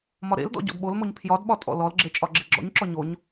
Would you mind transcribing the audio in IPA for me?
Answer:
mɒɾḛldɔ̰ ɟɔ̰dɓolmoɲ pʰjɒdɓɒ tʼɔ̰lɔlɡ͡ǁe t͡ʃʼɒɡ͡ǁeɡ͡ǁɔ̰ɲǁɔ ɲoɲ

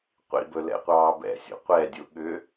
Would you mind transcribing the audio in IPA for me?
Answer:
qʷḭbɵ lɛ̰qʷɑːbɛ̰sʲo̰ qʷɛdʲu ɠʏ

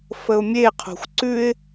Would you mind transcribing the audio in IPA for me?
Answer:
fəʊ̯mʲeqʰo̤xʷ ǀʉɪ̯

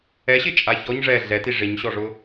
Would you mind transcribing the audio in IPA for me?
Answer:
ɛɕɪt͡ʃʼa çɔɲ ʐɛ ɮɛti ʐɪɲɕɔʐʊ

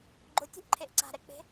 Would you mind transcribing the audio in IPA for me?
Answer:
ɡ͡ǃotʲo̤ʔǃʰeʔ ǀa̤ɾɛk͡pe̤

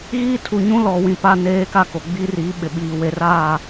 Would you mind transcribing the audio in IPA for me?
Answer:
ɣiː˦tʰu˨ ɲũ˦lɔ˨ wĩ˨ pa˦neː˦ka˦ko˨ ɡ͡bi˦ri˨˦ ɓɪ˨ɓiː˨ we˨raː˦˨

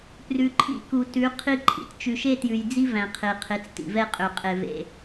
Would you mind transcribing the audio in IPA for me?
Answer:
prʉ˨ǃʰḭ˦˨ku˨ tʉ˨˦ qʰi˦ǃʼḭ˨t t͡ʃʉ˨ʃe˦tjʉ˨jd͡zi˦ væ̃˨qʰe˨qʰe˨˦t͡s tḭ˨vɛ˦qʼø˨ qʼe˨vḛ˨

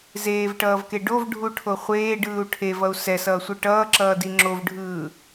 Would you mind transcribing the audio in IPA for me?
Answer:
zeːvʈʌːvke ɖovɖʱuʈʰo χʷeːɖɯːu̯ ʈʰevʌu̯ sɛsʌːsʷɯ ʈʌːǁʌːdi ŋ͡ǁovɖʱɯː

